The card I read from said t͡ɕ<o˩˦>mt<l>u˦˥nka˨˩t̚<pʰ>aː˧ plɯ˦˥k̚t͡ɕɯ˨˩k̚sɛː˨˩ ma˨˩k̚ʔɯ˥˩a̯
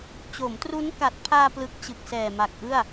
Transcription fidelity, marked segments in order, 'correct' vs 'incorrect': correct, incorrect: r, correct

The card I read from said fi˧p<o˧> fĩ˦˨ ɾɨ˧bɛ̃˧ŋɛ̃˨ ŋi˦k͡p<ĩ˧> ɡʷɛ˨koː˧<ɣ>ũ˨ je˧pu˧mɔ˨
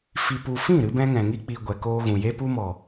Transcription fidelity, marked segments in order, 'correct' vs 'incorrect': incorrect: u˧, incorrect: i˧, correct

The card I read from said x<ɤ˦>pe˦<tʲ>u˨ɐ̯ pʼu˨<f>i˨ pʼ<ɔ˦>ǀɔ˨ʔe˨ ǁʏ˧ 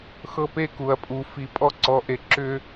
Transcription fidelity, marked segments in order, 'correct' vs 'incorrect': correct, incorrect: k, correct, incorrect: ɔ˧

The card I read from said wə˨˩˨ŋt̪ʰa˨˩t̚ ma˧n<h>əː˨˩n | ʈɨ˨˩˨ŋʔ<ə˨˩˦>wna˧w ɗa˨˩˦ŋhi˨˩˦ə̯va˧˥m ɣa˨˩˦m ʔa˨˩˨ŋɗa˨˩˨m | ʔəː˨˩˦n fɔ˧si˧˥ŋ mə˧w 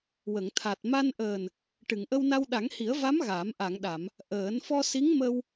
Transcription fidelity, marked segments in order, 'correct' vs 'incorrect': incorrect: ʔ, incorrect: ə˧

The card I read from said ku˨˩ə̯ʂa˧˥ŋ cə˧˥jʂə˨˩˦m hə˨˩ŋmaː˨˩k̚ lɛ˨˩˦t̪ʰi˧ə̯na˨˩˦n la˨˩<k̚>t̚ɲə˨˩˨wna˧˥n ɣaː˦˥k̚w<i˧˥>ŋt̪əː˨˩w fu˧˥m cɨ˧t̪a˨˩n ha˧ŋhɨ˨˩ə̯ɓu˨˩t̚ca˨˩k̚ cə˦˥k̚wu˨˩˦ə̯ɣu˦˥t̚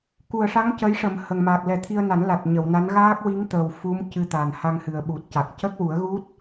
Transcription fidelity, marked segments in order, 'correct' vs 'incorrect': incorrect: none, correct

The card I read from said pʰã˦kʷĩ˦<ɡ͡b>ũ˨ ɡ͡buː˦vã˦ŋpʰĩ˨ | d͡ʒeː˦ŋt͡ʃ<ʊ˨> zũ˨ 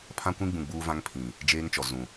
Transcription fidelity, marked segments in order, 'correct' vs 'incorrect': correct, incorrect: ɔ˨

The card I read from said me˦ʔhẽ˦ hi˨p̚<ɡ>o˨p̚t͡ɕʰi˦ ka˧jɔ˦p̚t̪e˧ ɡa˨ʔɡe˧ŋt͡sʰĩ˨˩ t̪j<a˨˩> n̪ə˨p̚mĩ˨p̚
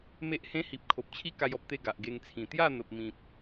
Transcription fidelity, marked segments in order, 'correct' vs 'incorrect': incorrect: kʰ, incorrect: a˥˧

